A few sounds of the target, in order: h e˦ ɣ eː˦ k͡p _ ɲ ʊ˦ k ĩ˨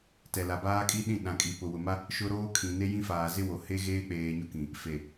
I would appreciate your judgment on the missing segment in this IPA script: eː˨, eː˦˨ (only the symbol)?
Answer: eː˨